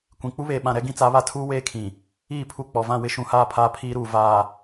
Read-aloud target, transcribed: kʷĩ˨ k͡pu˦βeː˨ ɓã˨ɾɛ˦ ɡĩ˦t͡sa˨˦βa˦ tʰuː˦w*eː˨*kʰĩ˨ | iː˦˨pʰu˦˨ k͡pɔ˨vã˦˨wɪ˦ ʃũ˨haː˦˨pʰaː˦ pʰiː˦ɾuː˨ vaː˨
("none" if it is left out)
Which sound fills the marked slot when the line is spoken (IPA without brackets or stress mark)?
eː˦